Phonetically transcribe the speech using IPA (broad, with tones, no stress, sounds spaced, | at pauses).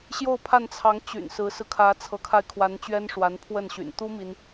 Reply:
ɕ j o˥˧ ʊ̯ pʰ a˥˩ n t͡sʰ ɑ˧˥ ŋ t͡ɕ y̰˨˩ n s ɹ̩˧˥ s ɹ̩˧ kʰ ä˧˥ t͡sʰ ɤ˧˥ kʰ a˧ ɪ̯ kʰ w a˧˥ n t͡ɕ ɥ ɛ˥ n ʂ w a˧˥ n pʰ w ə˥˩ n ɕ y̰˨˩ n t̪ u˥ m i˥ n